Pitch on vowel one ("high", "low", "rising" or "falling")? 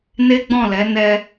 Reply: high